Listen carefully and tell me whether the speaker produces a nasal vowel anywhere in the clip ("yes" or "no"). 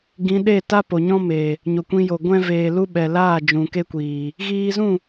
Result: yes